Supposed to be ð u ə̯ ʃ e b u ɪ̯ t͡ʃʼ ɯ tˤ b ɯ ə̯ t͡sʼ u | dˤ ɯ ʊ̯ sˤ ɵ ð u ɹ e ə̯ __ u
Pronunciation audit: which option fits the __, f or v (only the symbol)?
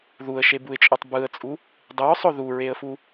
f